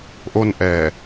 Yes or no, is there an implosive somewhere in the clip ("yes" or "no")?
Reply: no